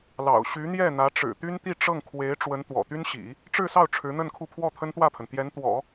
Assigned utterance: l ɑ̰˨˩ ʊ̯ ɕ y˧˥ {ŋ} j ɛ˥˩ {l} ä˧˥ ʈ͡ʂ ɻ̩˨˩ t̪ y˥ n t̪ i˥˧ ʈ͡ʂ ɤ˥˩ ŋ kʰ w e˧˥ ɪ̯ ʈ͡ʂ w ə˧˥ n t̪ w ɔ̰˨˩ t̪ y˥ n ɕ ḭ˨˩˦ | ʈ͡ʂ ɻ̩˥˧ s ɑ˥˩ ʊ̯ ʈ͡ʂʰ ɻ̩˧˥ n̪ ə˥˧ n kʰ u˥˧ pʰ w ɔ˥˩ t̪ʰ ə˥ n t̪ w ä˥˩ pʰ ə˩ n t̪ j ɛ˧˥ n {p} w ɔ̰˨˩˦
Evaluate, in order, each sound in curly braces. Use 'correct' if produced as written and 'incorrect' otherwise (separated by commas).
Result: incorrect, incorrect, incorrect